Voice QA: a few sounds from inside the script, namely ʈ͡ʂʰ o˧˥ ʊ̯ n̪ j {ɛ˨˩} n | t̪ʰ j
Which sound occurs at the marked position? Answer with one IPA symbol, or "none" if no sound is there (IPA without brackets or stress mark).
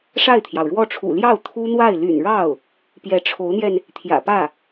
ɛ˧